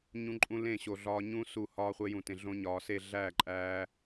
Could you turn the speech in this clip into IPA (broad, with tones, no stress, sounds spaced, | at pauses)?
ɲ ũ˧ ǃʼ ũ˧ l ẽ˦˨ ɕ o˨ ɮ ɒː˧ ɲ ũ˦ s u˦˨ h ɒː˦ χʷ e˧ j ũ˨ t ẽ˨ ɮ õ˧ ɲ ɒː˨ s e˦˨ ɮ æː˦˨ ǃʼ æː˧